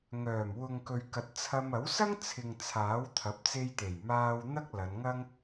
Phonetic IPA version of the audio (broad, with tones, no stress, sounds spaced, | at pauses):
ŋ œː˨˩ m w ʊ˨ ŋ k ɵ˨ ɥ k ɐ˨˥ t̚ t͡sʰ ɐ˧ m ɐ˨˥ w s ɐ˥ ŋ t͡sʰ ɪ˨ ŋ t͡sʰ aː˨˥ w t̪ʰ ɐ˨˥ p̚ t͡s e˧ j t̪ e˨˩ j m aː˧ w n̪ ɐ˥ k̚ l ɐ˨˧ n ŋ ɐ˥ ŋ